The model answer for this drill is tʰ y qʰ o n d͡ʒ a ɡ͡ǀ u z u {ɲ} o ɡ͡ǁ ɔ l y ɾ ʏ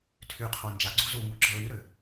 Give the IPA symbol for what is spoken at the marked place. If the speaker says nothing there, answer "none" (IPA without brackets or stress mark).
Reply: ŋ